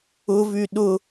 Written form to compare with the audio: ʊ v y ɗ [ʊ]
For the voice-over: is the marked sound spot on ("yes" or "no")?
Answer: yes